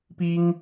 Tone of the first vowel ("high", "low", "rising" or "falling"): high